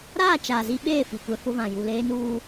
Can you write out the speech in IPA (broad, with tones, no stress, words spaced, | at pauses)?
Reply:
ɾaː˦˨ t͡ʃaː˨zi˦ɓeː˦˨ fi˨kʷɛ˦fʊ˦vã˨ ju˨leː˦nuː˦